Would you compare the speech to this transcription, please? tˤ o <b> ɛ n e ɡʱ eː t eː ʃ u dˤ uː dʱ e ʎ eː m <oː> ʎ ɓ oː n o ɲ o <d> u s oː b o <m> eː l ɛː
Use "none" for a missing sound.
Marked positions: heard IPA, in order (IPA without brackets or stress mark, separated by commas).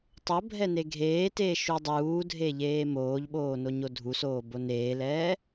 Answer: bʱ, oː, dʱ, n